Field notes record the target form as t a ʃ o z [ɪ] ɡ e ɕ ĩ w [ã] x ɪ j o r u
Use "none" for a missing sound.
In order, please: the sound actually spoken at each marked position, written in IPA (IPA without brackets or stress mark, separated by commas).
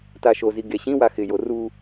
i, a